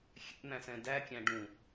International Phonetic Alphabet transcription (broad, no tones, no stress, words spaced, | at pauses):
xʲɛ̰n̪æ̃sɛ̃ dækʲæ̃ ɖũ